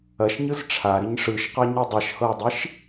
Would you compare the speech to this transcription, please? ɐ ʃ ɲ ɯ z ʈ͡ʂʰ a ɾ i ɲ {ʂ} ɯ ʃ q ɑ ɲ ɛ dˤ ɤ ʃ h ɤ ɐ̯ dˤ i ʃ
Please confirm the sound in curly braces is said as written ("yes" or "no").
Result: yes